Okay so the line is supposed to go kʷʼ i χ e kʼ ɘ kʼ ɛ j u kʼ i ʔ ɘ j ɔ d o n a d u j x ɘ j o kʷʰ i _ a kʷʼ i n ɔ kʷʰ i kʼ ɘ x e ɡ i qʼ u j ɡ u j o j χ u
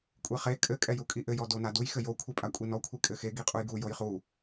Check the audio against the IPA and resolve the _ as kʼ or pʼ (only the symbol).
pʼ